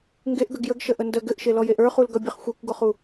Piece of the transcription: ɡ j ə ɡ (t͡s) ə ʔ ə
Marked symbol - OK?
no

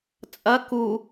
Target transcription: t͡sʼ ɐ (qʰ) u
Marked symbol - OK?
no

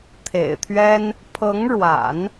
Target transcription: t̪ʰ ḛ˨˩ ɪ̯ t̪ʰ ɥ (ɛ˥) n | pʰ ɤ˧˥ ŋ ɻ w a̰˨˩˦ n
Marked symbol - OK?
yes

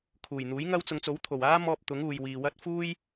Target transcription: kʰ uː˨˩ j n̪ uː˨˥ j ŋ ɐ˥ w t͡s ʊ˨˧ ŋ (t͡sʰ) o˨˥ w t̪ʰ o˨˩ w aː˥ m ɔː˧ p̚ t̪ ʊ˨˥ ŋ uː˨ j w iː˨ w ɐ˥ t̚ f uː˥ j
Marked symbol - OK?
no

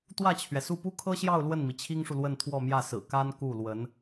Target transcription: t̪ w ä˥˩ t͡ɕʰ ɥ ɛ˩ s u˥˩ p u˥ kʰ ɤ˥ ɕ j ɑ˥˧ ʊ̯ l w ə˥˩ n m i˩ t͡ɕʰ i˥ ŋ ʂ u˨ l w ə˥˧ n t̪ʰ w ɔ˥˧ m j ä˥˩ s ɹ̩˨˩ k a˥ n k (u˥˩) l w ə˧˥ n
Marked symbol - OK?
yes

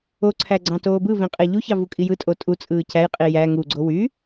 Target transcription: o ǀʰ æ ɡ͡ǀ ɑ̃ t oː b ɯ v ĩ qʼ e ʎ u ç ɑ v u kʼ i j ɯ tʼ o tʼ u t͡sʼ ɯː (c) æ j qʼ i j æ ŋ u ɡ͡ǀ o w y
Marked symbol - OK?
yes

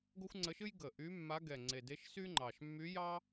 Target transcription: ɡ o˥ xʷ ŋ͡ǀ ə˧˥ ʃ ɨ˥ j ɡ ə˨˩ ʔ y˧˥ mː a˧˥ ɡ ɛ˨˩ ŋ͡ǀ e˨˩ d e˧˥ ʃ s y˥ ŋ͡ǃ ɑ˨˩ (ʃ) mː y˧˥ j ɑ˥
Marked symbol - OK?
yes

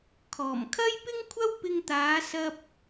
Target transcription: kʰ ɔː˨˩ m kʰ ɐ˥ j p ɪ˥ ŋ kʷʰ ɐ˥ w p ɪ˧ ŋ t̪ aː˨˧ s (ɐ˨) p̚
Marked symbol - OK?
no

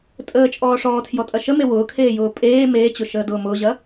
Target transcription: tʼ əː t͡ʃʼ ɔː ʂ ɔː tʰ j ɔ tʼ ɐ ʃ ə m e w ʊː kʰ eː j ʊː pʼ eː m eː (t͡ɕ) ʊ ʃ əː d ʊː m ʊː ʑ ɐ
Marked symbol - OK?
yes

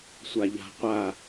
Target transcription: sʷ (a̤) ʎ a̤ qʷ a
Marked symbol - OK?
no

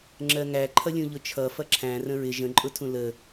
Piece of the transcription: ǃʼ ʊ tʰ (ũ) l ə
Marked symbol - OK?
yes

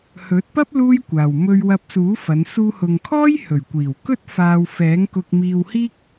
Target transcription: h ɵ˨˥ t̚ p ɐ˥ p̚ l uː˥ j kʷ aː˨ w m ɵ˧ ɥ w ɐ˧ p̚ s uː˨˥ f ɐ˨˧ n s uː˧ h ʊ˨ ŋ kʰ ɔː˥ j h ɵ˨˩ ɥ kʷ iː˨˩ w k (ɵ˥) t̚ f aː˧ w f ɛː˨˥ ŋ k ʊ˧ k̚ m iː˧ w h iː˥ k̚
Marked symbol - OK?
yes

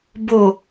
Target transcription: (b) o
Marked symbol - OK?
yes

